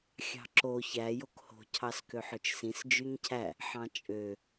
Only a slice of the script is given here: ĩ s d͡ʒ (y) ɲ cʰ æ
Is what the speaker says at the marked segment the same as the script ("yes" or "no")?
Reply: yes